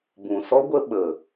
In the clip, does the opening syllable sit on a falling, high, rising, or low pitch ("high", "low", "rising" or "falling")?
low